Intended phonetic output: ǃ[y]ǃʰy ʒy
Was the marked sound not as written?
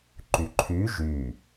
no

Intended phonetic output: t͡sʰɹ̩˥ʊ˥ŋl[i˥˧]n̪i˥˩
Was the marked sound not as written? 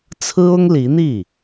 yes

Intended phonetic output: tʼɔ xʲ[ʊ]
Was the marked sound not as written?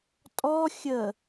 yes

